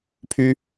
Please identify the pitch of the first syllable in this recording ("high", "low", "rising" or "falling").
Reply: high